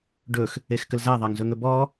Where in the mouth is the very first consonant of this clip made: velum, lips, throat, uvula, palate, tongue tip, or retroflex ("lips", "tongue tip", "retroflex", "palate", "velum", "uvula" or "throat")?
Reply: retroflex